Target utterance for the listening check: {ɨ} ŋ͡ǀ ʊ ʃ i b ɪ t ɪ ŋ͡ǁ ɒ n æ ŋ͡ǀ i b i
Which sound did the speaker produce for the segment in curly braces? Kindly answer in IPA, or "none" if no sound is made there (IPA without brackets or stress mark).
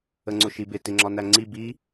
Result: ə